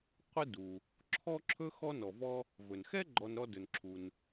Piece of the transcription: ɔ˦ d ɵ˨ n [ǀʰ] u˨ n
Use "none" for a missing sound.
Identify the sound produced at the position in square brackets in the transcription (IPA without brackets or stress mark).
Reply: ǁʰ